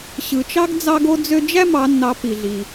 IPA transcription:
ɕ ɯ˩ t͡ʃ ɑ˥ ɡ d͡z ɑ˧ ɡ o˧ d͡z ø˧ d͡ʒ æ˥ m ɑ˩˧ nː ɑ˩˧ p i˩ ɮ i˩

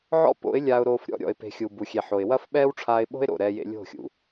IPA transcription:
ʕ ɔ̰˦ p o̰˨˦ ɪ̯ lʲ aː˧ ʊ̯ ɾ oː˧ f ɾʲ ɔ̰˧ ɾʲ ɔ̰˨ ɪ̯ p e̤˨ xʲ u˨ b u˨ xʲ e˨ ħ o˨ ɪ̯ w ɐ˦ f ɓ ɛː˦ w ʈ͡ʂʰ aː˧ ɪ̯ ɓ o̤˦ ɪ̯ ɾ o̰˨ ɾ ɛː˧ j ḛ˧ lʲ o̤˦˨ xʲ ṵ˨

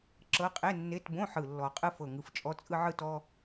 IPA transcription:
ǁ ɤ˧˥˧ qʼ e˧˥˧ nː e˧˥˧ t b õ˧˥˧ ħ ɯ˨˩ lː ɔ˨˩ qʼ ɯ˥ f ɤ˨˩ ŋ ɯ˨˩ f t͡ʃʼ ɔ˥ t͡sʼ ɯ˥ ʕ ɯ˥ t ɔ˧˥˧

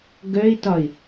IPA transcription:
ɡ œ ɪ̯ t ɒ ɪ̯

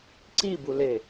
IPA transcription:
ǀ i b u l e

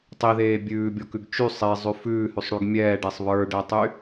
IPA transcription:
tˤ i ð eː bʲ ʉː bʲ ɔ k ʉ ɡ t͡ʃ y sˤ e zˤ ʉ f ʉː h ʉ sˤ ɽ y ɡ mʲ ɛː ɖ ɛ sˤ β ə˞ ɖ ɛ tˤ y

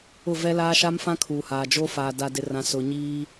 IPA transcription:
ʊ˦˨ v ɛ˦ l aː˦ ʃ a˦ m f ã˦ kʰ uː˨ h aː˨ d͡ʒ o˦ f aː˨ d a˨ d ɪ˨ r ã˨ s ʊ˨ ɲ iː˦

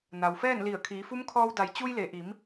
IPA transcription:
n a˩ w f ɛː˥˨ n l i˧˩ ə̯ kʰ iː˩˧ f u˧˥ m kʰ ɔː˧ w d a˩˧ j t͡ɕ u˧ j l e˩ ʔ i˩˧ m

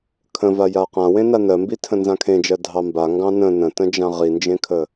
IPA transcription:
kʰ ə̃ v a j a q ã w ẽ n a n ɜ m b i tʰ ə̃ n z ã kʰ ẽ d͡ʒ ɜ dʱ ɑ m b a ŋ ɡ ɑ̃ n ə̃ n ə̃ t ə̃ d͡ʒ ã ʁ i n d͡ʒ ẽ kʰ ə

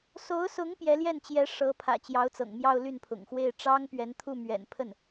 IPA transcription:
s o˧˥ ʊ̯ s ʊ˧˥ ŋ p j ɛ˧˥ l j ɛ˥˩ n t͡ɕ j ɛ˧˥ ʂ ɤ˧˥ pʰ ä̰˨˩ t͡ɕ j ɑ˧˥ ʊ̯ t͡s ɤ̰˨˩ ŋ m j ɑ˥˧ ʊ̯ l y˥˩ n pʰ ʊ̰˨˩ ŋ x w e˥˩ ɪ̯ ʈ͡ʂ ɑ˥ ŋ p ɥ ɛ˧˥ n t̪ʰ u˥˩ m ɥ ɛ̰˨˩ n pʰ ə˥˩ n

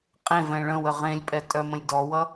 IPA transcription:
qʼ ẽ v ɛ̃ ɭ ə̃ w ə ʁ ẽ lʲ pʼ ɛ tʼ œ m ə̃ lʲ d ɔ w ʌ

